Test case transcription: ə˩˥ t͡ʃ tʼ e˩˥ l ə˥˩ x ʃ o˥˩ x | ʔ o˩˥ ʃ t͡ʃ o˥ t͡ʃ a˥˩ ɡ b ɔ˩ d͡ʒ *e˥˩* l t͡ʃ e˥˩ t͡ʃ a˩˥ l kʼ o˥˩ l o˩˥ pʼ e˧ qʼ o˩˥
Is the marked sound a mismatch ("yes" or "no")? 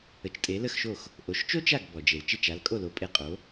yes